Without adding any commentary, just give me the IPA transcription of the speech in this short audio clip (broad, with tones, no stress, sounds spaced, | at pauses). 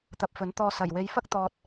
t̪ ɐ˧ p̚ f ɵ˨˥ n t̪ ɔː˧ s ɐ˨˩ j w e˨˧ j f ɐ˥ k̚ t̪ ɔː˨ t̚